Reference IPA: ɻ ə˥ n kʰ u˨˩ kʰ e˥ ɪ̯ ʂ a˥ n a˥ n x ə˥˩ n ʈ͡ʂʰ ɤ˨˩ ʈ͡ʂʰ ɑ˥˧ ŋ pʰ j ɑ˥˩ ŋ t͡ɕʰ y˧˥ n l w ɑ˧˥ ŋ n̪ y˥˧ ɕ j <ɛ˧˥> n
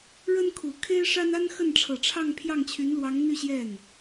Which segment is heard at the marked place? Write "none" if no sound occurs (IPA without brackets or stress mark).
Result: ɛ˥˩